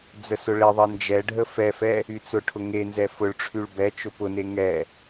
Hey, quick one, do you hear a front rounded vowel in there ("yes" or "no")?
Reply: yes